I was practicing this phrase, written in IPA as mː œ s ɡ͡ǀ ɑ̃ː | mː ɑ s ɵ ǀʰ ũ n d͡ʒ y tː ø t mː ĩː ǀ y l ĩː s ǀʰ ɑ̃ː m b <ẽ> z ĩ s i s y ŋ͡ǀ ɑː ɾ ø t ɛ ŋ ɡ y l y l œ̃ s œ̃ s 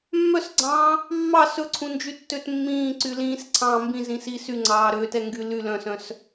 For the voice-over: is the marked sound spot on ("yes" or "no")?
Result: no